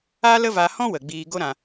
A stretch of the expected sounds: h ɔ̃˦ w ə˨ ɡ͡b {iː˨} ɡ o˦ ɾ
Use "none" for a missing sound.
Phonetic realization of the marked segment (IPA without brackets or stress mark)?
iː˧